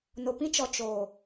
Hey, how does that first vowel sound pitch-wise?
low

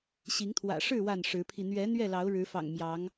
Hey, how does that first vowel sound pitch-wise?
rising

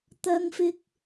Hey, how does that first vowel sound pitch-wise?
high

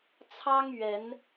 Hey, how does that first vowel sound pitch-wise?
high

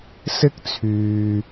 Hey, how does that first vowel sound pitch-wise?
high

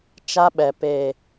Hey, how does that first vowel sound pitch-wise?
high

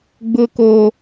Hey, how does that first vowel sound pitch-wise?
high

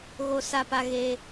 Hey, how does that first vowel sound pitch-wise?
high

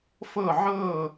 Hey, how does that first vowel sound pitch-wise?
falling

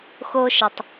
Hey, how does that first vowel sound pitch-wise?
high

